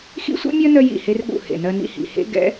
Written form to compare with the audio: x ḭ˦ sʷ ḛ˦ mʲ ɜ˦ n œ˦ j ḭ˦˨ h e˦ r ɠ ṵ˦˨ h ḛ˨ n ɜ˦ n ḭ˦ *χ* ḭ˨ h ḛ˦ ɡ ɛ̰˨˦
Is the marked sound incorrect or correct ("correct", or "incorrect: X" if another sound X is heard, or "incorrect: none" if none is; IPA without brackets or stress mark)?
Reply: incorrect: h